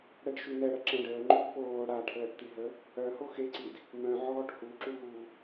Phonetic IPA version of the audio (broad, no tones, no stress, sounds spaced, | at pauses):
ɽ ɛ ɖ ʃ y n̪ ɛ ɽ ə ǁ ɛ̃ ɖ əː ŋ͡ǃ u d p oː ɽ a ʈʰ əː ʈ t̪ i ɦ ə | œ h o x e ǀ i d | m œ̃ ʕ ɔː ʈ h u ǁ uː